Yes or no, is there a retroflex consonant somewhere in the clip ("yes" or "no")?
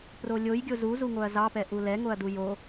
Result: no